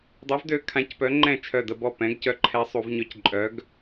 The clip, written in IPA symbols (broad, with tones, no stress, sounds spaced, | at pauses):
dˤ ø˨˥ v d ø˧ kʰ ã˨˥ c p œ˨˥ ŋ͡ǃ ɛ̃˥˩ t͡ʃʰ œ˧˩ d ə˧˩˧ b ɔ˥˩ p ɛ̃˨˥ ɡ c œ˧ ǃʰ ɛ˧ sˤ u˧˩˧ v ɲ œ˧ c ǃʼ œ˨˥ ɡ